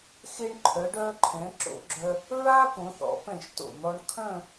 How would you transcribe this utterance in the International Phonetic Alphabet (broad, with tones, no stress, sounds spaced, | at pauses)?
x e˧ ɳ ǃʰ œ˩˧ ɖ œː˧ ǃʰ ɛ̃˩˧ ǁ o̰˧ ɡ͡ǁ œ˧ | ɹ a˥ p õ˩˧ θ ɔ̰˩˧ p ɛ̃˧˩ ʃ t o̰˧˩ n̪ ɔ˧ ɳ kʰ œ̃˥˧